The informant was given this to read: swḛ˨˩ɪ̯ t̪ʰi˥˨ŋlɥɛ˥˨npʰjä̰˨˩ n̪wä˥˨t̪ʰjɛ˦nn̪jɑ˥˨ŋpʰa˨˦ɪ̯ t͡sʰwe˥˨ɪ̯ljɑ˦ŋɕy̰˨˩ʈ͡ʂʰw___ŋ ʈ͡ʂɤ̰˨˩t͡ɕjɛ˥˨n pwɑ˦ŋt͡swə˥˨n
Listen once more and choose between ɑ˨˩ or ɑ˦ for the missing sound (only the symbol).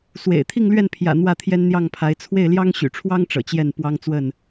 ɑ˦